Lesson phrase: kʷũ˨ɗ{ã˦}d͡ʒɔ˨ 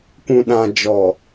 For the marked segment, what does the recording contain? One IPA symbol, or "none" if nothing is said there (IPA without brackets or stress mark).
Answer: ã˨